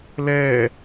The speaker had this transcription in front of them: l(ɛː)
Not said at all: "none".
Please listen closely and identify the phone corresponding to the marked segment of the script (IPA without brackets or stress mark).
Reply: ɛː